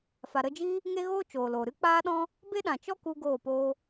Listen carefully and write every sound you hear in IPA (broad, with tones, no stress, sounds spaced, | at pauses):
f a˨ ɾ ə˧ d͡ʒ iː˦ | ŋ e˦ ɣ oː˦ t͡ʃ oː˨ l oː˨ ɾ ɨ˦ k͡p aː˦ ɗ ɔ̃˦ | b e˦ ɗ ã˨ t͡ʃ ɔ˦ k u˦ ɡ oː˦˨ p oː˦